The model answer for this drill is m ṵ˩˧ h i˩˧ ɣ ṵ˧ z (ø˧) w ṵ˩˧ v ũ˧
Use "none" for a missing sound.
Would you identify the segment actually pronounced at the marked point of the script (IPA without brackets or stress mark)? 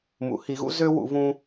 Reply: ø˧